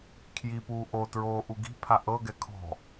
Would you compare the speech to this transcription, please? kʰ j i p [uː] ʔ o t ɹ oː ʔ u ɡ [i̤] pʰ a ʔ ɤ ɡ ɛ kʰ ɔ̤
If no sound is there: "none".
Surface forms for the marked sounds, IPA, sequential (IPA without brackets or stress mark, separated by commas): uː, i̤